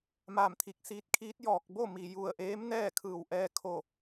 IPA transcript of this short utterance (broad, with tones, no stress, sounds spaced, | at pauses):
m aː˧˩ m t̪ʰ i˧˩ k̚ s iː˧˥ t̚ kʰ iː˧˥ t̚ j ɔː˧ k̚ b o˥˨ m i˩ j u˧˩ ə̯ ʔ eː˧˥ m n ɛː˥˨ kʰ ɯː˧˩ w ʔ ɛː˧ kʰ o˧˩